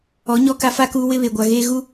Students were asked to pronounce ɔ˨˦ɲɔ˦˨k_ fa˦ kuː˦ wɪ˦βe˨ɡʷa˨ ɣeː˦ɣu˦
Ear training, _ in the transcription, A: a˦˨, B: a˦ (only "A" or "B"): B